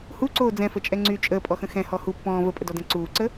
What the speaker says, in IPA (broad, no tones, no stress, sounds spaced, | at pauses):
h u ǀ oː d͡z ɛ̃ f ə t͡ʃʼ ɛ ŋ͡ǀ y t͡ʃʼ əː pʼ ɔ x ə̃ x ɛ̃ h ɔ h u pː ɔ̃ː v ə pʼ ə d ɔ d ɛ̃ ǀ uː ǀ ə